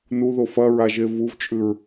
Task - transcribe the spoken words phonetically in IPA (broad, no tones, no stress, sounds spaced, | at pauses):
n u ð o f ɐ ɹ a ʒ e v u v t͡ʃʼ ʉ ɹ